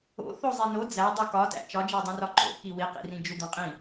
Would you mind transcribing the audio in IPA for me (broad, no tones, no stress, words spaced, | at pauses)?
o̰θo zˤino d͡zæ dˤukɒtæ̰ t͡ʃɒd͡ʒædˤĩrɒ ǃo̰ki wiqḭrĩ d͡ʒud̪õqʼĩ